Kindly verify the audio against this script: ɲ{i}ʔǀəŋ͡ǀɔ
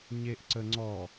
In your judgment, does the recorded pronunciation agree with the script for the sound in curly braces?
no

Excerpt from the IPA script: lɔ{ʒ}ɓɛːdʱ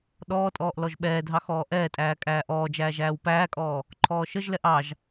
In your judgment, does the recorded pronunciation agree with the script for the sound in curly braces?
yes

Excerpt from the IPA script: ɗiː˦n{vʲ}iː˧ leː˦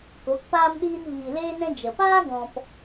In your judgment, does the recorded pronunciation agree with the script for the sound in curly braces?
no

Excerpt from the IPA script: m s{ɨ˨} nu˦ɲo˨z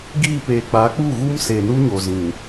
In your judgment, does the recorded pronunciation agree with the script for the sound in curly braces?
no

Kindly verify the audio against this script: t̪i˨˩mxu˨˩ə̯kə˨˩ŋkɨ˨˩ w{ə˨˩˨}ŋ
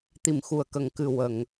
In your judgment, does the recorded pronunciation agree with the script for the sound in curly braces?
yes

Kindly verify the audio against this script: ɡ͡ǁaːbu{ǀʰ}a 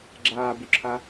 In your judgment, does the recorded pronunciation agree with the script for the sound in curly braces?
no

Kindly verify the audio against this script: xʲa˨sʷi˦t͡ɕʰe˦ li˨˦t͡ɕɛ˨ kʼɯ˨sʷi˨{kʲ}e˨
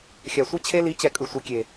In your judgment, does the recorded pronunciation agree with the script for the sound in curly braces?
yes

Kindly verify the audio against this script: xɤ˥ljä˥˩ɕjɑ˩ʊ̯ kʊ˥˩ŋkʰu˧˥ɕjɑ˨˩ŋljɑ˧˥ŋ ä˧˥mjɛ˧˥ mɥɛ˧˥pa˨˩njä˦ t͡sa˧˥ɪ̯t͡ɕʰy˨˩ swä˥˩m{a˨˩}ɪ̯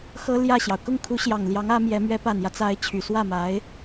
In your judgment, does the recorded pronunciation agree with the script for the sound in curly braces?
no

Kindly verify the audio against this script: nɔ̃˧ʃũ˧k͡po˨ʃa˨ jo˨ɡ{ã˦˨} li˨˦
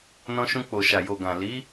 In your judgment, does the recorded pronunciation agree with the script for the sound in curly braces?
no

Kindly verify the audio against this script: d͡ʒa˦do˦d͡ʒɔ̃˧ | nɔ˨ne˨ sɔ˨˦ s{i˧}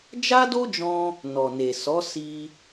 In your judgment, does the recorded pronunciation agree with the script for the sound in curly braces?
yes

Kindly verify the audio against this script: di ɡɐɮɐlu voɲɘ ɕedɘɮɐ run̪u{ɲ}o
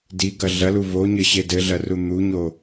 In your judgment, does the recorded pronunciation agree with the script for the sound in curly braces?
yes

